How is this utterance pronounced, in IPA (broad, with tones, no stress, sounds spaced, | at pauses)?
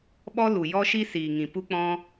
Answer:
ɓ ɔ˦ l u˨ j ɔ˦ ʃ i˦ s iː˨ ŋ ĩ˨ p u˦ k͡p ɔ̃˦